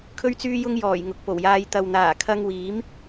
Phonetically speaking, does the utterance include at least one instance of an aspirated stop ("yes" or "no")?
yes